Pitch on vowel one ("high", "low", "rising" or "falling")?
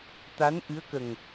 rising